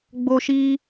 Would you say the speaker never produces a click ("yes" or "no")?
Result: yes